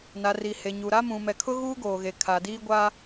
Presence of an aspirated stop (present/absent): present